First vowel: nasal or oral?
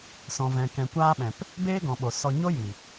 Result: nasal